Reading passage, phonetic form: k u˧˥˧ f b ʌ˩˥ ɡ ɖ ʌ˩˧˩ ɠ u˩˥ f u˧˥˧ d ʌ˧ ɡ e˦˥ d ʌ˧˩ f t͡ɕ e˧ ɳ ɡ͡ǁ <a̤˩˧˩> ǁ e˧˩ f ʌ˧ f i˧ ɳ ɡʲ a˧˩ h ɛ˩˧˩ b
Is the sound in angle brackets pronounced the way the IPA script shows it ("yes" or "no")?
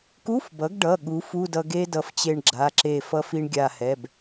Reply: no